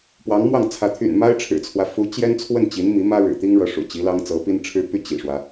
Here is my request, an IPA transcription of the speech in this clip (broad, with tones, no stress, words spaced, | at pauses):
pwɑ˧˥ŋmwɑ˥˩ŋt͡sʰä˧˥ t̪ʰy̰˨˩nma˥ɪ̯ ʈ͡ʂʰɻ̩˨˩t͡sʰwä˦ fu˧˥ t͡ɕjɛ˥nt͡sʰwə˥˩n t͡ɕi˧˥n mi˧˥mä˥ ɻɻ̩˨˩t̪i˥ŋɻɤ˧˥ʂṵ˨˩ t͡ɕi˧˥lɑ˥ŋ t͡sɤ˧˥pi˥nʈ͡ʂʰɻ̩˥ py˥˩ t͡ɕḭ˨˩ʂwä˦